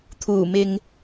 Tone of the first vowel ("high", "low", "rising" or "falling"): low